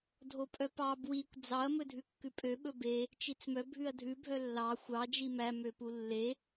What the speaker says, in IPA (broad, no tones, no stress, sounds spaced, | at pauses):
dʱ o pʼ œ p ɑ b w i kʷ d͡z ɑ ɐ̯ m ɵ dʱ ʉ kː ʉ pʼ ø ɓ ɵ b e | t͡ʃ i t͡s m œ bʱ ʉ ɐ̯ dʱ ʉ bʱ œ lː ɑ xʷ ɑ d͡ʒ i m æ m ø p u lː e